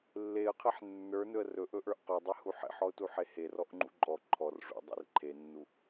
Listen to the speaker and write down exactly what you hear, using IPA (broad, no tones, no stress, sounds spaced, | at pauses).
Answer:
lː e ə̯ qʰ e ħ nː ə˞ n ɵ ə̯ r ɵ ʔ ɵ ʔ ə˞ ʔ q ɵ dˤ e h u ħ ḛ ħ ɔ ʊ̯ t u ħ e h e r ɔ ʔ ŋ͡ǃ ṵ ǃʼ ɔ ǃʰ ɔ r ʐ ṵ dˤ ḛ r ǃʰ e nː u